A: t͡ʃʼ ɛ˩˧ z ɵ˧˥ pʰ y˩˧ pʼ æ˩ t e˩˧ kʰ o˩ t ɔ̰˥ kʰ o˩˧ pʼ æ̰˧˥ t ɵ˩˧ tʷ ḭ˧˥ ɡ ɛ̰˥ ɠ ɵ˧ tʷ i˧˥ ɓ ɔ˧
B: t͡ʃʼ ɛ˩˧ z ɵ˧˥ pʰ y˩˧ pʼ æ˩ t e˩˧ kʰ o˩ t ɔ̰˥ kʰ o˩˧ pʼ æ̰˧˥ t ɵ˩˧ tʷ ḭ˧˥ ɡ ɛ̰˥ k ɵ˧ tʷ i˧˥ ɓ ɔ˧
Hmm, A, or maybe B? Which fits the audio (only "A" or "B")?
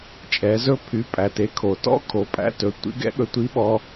A